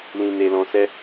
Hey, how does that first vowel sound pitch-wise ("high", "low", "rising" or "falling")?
low